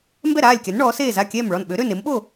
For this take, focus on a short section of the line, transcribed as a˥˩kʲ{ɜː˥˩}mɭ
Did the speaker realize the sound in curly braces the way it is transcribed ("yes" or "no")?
no